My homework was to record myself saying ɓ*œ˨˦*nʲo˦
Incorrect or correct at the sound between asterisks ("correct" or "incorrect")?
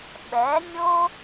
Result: incorrect